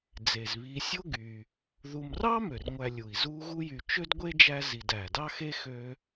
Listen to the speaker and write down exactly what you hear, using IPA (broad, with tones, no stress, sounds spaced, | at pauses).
d͡z e˩ z β i˨ sʲ o˥ ɡ y˨ | ð u˨ m r ɑ˥ m ø˩ r ŋʷ æ˨ lʲ u˩ i̯ z u˦ ɣ u˦ j y˨ t͡ʃ ø˥ d ɡʷ e˥ d͡ʒ æ˦ z i˨ d æ˩ d ɑ˥ x e˥ x ø˦